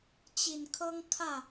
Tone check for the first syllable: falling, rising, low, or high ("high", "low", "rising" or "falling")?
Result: low